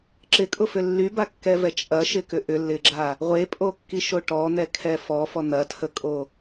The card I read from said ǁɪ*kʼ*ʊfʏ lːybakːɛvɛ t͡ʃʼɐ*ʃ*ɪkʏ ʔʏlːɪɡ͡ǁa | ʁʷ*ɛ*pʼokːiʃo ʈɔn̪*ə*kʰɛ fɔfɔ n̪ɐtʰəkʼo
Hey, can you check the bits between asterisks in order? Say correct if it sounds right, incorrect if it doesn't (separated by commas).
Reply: correct, correct, incorrect, incorrect